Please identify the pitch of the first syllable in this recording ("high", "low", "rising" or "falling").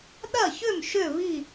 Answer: falling